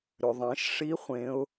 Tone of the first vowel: low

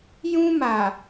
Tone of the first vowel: high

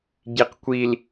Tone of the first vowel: low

